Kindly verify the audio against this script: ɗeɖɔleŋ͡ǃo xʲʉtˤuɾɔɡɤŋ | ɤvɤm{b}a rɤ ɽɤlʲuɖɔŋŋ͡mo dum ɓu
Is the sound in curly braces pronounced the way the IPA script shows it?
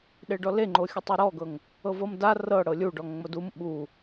no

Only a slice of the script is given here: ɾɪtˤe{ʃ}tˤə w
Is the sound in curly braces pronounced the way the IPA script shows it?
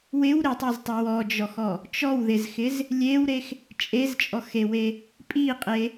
no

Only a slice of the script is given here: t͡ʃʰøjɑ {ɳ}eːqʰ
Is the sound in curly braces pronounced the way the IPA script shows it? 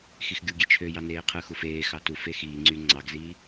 no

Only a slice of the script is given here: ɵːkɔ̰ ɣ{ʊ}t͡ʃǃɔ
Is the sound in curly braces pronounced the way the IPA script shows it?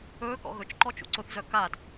no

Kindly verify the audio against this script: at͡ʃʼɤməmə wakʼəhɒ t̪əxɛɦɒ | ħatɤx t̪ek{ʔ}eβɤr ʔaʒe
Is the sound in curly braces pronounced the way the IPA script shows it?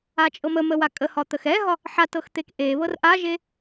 yes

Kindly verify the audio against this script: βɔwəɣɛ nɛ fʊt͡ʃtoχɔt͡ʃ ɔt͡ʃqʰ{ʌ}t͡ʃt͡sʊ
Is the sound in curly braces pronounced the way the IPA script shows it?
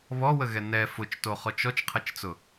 yes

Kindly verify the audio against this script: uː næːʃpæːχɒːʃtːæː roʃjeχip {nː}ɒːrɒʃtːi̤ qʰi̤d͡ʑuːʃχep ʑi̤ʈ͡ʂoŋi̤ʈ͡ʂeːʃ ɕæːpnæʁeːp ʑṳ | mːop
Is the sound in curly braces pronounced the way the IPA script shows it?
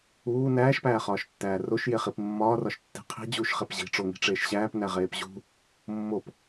no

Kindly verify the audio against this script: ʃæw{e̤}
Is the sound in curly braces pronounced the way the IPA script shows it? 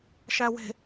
yes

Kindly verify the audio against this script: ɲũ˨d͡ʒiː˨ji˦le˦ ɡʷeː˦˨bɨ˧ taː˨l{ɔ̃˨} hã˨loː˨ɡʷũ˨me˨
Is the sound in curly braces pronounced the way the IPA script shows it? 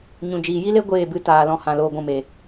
yes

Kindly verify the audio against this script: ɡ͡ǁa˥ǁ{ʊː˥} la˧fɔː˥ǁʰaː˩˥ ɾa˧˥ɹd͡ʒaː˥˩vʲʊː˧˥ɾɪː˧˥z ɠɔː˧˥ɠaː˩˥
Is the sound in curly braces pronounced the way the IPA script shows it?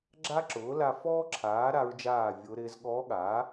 no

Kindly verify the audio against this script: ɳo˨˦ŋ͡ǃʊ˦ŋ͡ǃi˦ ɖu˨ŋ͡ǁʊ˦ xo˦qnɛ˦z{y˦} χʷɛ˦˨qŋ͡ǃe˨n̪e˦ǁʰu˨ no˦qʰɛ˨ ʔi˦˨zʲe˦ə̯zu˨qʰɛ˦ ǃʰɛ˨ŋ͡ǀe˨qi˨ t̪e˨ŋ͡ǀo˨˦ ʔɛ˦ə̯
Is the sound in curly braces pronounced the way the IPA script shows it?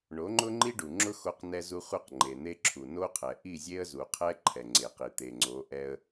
no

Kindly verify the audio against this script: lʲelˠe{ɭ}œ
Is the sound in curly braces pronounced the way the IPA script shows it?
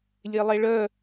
yes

